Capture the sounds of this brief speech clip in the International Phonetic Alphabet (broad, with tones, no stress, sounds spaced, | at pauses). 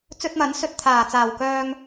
t͡s ɵ˧ t̚ m ɐ˨˥ n s ɵ˨ t̚ t̪ʰ aː˨˩ t͡s aː˨˩ w k œː˧ ŋ